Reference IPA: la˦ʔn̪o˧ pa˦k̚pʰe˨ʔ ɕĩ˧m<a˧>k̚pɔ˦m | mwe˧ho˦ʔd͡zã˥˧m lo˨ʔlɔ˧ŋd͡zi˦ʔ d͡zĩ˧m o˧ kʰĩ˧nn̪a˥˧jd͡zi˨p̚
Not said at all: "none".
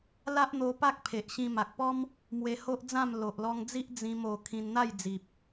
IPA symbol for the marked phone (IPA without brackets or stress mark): a˨